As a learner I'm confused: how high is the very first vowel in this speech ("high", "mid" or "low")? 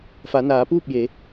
low